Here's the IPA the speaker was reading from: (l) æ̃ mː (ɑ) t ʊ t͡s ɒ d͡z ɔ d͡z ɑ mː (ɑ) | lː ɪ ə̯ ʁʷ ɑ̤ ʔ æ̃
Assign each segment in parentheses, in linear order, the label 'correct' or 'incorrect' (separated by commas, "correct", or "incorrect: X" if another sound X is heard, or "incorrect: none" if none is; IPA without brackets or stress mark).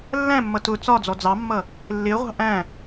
incorrect: lː, incorrect: ʌ, incorrect: ʌ